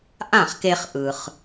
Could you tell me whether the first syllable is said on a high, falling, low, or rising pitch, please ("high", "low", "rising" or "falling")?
falling